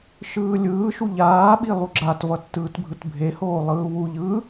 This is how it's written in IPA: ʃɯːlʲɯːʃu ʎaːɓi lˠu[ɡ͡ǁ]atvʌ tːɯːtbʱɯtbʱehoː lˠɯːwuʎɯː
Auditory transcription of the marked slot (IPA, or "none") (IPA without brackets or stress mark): ɡ͡ǁ